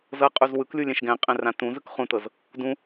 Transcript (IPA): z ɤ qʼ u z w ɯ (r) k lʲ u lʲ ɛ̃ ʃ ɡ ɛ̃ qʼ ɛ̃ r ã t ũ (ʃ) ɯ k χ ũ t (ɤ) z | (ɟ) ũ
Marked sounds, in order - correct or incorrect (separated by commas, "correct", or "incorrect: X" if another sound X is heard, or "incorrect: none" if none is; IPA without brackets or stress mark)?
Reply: incorrect: none, incorrect: z, correct, incorrect: d